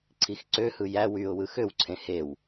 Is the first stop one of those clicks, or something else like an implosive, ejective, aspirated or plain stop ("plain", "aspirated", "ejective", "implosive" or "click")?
click